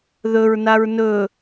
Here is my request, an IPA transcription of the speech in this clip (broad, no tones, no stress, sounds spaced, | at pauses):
ð ɵ ɹ n a ɹ n ɵ